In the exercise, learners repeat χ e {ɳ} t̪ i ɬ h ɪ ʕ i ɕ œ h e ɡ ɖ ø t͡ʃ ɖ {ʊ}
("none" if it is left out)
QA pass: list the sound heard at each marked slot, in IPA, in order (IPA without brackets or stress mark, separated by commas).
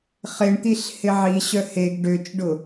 ɳ, ʊ